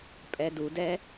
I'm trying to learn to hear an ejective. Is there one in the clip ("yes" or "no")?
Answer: yes